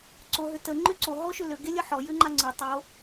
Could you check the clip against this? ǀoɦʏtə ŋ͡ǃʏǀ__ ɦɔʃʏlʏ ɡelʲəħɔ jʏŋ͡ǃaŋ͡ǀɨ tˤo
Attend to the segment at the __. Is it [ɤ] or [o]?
o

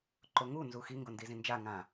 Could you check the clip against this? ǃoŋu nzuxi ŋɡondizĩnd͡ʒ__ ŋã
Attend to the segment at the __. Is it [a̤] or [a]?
a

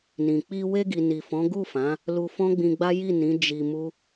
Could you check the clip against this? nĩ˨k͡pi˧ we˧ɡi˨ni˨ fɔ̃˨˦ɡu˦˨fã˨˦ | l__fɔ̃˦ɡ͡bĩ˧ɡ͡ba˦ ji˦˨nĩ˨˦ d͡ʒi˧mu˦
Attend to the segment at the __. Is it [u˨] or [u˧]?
u˧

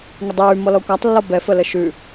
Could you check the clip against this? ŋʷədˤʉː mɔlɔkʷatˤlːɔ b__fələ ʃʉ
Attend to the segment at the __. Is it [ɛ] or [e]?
ɛ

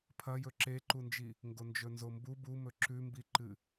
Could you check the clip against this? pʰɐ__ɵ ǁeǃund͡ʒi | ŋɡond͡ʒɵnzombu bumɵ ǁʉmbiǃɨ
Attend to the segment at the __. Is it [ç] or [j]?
j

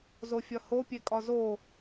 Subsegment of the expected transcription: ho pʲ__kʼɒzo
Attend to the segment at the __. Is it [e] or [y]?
e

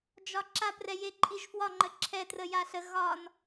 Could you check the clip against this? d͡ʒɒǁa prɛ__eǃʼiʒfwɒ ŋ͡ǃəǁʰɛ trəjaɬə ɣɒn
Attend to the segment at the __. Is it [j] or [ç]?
j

